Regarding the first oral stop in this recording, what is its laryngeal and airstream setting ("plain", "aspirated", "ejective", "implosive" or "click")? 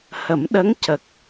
implosive